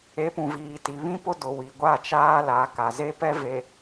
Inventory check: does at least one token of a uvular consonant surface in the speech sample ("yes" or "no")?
no